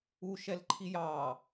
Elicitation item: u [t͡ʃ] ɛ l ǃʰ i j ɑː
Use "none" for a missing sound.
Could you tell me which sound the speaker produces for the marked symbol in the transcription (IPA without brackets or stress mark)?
ʃ